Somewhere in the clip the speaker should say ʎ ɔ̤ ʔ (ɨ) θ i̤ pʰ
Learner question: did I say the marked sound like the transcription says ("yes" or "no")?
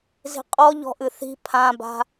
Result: yes